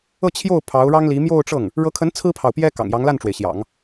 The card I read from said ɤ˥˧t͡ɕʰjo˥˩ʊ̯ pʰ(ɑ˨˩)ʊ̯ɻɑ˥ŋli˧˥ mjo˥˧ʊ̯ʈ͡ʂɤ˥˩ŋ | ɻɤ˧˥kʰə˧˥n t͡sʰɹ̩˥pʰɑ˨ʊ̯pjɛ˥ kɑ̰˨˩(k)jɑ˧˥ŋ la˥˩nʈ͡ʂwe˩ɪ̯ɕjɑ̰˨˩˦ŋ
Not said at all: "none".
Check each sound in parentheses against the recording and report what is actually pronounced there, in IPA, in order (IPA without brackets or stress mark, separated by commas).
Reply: ɑ˧˥, ŋ